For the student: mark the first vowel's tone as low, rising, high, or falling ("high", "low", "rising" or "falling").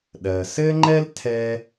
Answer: low